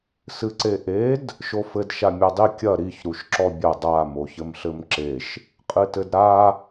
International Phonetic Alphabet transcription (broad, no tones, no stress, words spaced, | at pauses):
sɨǀeʔed | ʃofɘd ʃamʲadˤi kʲɐ ɾiç ɾuʃǁɔbʲɐ dˤa moçɘmɬɘmǁeʃ | qʼɨtɘdɾa